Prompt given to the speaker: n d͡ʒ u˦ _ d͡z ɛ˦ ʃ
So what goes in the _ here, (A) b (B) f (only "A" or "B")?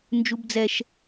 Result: A